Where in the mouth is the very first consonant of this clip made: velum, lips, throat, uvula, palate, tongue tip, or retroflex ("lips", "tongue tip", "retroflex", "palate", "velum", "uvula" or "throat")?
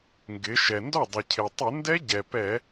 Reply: velum